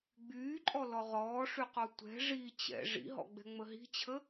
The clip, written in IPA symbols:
ɡ͡byːǃʼɔlɔ ʁɔːʂyqɔ tʷɛ̤ ʐi t͡ɕɛ̰ ʐḭɦɔ̰ɡ͡bɛ̤ŋ͡mə ɦi̤t͡ɕʰə

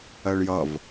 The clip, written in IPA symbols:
ɜɭjʌv

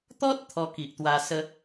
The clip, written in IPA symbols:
t̪ɔ˦t̚ t̪ʰɔ˧ki˨ʔt̪wa˧ sə˦

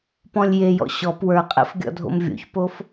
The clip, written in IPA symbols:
pɔ̃lʲjejɔ̰ ɕɔp wə˞qʼḛf ɡʲɔ̰dʱo̰mvʲo̰çpof

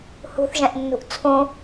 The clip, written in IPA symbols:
hṳθʒɛ̃ʔnːṳʔ t͡sʰũ

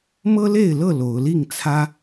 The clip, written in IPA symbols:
mɤ˦le˥˨ɪ̯lɤ˥˨ lo˨˦ʊ̯ li˥˨ŋt͡sʰä˦

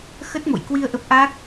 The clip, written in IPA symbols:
xə˦˥t̚mo̰˧˨jkwi˧ə̯ ʔə˦˥p̚ʔa˦˥k̚

